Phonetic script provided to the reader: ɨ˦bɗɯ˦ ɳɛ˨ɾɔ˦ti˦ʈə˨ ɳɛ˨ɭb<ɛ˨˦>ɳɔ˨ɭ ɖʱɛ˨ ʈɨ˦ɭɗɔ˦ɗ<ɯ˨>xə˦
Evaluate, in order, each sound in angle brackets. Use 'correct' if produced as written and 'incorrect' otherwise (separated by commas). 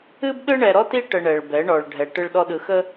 correct, correct